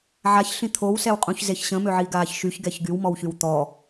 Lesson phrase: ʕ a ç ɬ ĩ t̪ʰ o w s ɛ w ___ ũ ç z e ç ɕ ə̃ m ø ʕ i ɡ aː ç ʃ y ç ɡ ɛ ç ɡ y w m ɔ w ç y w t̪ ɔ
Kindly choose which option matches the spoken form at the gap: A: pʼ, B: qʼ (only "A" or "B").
B